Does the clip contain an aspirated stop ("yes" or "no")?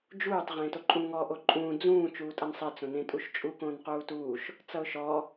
no